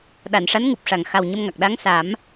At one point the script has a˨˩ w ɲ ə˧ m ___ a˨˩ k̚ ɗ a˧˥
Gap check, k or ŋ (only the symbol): ŋ